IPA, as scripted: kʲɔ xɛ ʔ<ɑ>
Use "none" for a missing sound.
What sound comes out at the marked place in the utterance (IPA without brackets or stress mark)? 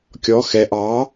ɑ